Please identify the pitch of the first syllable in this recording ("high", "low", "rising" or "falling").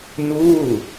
falling